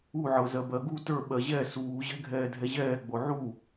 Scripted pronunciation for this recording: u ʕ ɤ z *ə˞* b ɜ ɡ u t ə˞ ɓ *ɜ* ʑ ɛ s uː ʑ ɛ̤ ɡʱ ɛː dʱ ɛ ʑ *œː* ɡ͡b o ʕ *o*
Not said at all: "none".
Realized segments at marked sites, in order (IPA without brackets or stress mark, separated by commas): ɜ, ɜ, ɛː, u